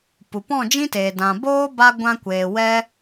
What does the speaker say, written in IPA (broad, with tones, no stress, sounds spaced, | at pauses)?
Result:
p u˨ p ɔ̃˦˨ d͡ʒ ĩ˦ t eː˨ d ã˨ b oː˦ b a˦ ɡʷ ã˧ kʷ eː˨ w ɛ˦